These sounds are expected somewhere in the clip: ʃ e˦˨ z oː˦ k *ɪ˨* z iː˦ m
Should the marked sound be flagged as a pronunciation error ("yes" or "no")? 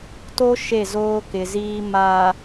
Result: no